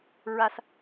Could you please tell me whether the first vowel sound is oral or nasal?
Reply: oral